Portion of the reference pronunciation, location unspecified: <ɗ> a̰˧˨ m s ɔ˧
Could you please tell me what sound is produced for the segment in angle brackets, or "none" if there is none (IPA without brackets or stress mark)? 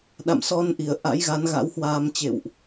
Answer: ɗ